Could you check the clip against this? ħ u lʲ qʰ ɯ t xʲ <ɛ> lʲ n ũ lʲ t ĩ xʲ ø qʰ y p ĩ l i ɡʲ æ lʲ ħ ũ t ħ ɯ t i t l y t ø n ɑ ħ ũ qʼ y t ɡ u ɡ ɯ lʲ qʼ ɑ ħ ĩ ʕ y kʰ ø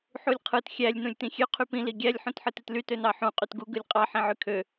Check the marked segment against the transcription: incorrect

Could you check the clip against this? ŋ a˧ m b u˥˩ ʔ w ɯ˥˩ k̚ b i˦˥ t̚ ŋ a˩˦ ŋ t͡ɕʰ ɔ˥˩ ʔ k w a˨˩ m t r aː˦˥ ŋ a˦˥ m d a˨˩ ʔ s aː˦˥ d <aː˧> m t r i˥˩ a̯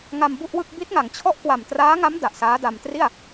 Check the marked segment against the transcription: incorrect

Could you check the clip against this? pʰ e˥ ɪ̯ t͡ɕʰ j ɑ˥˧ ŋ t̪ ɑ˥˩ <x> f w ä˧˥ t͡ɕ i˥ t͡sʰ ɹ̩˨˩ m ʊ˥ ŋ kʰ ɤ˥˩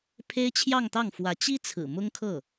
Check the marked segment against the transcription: incorrect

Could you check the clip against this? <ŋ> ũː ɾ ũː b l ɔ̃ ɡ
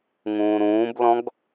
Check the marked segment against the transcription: correct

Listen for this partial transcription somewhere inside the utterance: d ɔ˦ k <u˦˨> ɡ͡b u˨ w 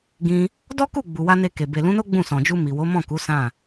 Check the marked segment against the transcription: correct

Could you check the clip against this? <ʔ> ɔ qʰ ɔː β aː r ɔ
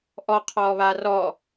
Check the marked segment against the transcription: correct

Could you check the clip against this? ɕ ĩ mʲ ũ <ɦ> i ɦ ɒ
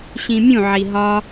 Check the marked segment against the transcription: incorrect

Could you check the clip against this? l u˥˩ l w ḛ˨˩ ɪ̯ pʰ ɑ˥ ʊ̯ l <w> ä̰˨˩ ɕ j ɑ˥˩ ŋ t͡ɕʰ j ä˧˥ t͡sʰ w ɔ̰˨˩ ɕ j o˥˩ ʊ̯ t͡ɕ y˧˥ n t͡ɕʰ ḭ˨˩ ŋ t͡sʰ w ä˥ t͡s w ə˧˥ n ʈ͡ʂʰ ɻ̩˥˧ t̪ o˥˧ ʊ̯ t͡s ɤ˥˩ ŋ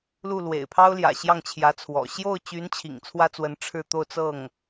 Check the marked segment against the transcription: incorrect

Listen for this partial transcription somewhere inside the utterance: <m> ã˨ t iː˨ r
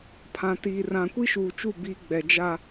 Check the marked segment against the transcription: incorrect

